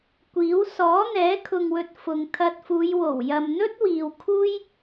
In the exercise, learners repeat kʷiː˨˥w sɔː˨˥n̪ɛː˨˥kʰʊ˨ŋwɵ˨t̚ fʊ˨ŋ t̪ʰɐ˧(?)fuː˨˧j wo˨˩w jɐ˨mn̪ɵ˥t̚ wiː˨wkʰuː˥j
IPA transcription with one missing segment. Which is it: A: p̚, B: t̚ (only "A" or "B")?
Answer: B